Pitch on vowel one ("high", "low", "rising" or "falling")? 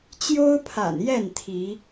high